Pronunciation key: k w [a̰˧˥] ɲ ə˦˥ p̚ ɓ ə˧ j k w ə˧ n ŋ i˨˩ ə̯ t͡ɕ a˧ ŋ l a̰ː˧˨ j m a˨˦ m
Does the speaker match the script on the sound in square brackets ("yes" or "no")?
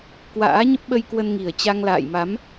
no